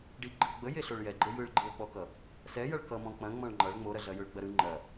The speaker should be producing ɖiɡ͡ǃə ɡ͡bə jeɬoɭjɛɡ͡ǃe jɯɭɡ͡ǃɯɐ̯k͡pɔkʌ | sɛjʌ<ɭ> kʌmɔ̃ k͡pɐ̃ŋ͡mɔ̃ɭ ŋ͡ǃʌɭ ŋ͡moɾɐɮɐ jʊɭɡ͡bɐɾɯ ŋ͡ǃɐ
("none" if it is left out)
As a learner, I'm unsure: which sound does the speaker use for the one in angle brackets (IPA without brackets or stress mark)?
ɭ